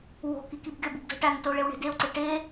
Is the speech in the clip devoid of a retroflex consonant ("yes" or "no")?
no